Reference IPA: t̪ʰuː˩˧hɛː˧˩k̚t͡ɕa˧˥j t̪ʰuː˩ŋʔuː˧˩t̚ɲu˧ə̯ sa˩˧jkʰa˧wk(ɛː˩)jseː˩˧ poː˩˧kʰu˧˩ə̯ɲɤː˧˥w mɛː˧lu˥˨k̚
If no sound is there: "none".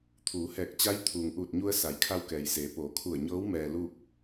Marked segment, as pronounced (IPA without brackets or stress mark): ɛː˩